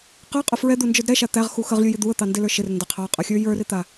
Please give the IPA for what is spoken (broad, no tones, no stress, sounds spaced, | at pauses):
q ə˞ qʼ ə f ɹ ɛ d̪ u n d͡ʒ ə˞ d ɾ ɛ ʃ a t̪ æ ʁ x u x ə ʁ lʲ u j ɪ d̪ u ə̯ t̪ ɑ n d ɪ l ə˞ ʃ ɪ r n d a qʰ ɑ qʼ ə xʲ ə˞ j ə˞ r ɪ t̪ a